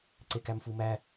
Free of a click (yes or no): no